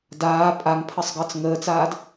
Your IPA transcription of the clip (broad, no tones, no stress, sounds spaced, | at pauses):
d aː pʼ a ŋ pʰ ə sˤ ɡ əː t͡s ŋ əː t͡s aː d